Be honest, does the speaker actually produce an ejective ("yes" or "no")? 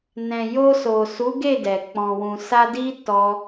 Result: no